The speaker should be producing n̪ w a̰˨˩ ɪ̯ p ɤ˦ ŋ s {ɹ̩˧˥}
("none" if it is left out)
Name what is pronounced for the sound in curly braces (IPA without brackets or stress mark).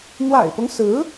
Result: ɹ̩˧˥